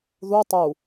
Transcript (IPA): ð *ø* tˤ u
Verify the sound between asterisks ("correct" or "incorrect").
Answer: incorrect